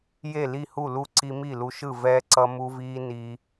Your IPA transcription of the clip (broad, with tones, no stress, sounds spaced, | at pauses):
j e˥˨ l i˥˨ h u˥˨ l u˥˨ ǀ i˦ m i˥˨ l u˦ ʃ ɯ˥˨ v ɛː˦ ǀ ʌ˦ m u˦ v iː˦ n i˦